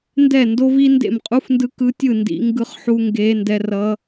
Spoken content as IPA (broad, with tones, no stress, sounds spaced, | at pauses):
n d ɛ˥˨ n d o˦˥ v i˦˥ n d ḛ˥˨ m qʼ u˦˥ f n d ɯ˦˥ k ɯ˦˥ tʲ ɯ˥˨ n d ḭ˦˥ ŋ ɡ ɯ˦˥ χ ħ u˦˥ ŋ ɡ e˦˥ n d ɛ˦˥ r ʌ˦˥